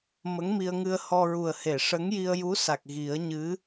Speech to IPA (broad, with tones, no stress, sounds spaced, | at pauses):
m ə˧˥ ŋ m i˧ ə̯ ŋ ɨ˧ ə̯ h ɔ˧ ɹ u˨˩ ə̯ h e˨˩˨ ʂ ə˧˥ ŋ j i˧ ə̯ j u˧˥ s a˨˩ k̚ ɣ i˨˩˦ ə̯ ɲ ɨ˧˥